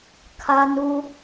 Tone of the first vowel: high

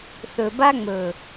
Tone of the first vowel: low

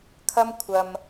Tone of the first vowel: high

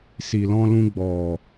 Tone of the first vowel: low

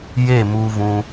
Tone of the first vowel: falling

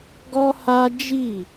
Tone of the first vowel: high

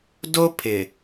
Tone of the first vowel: high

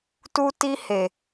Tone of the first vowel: high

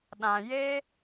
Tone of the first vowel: low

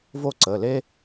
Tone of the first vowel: falling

